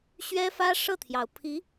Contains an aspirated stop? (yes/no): yes